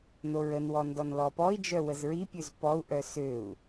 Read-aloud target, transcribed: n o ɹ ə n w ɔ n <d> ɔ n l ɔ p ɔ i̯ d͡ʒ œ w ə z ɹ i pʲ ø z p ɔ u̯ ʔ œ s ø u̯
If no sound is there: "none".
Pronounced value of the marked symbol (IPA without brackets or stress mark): d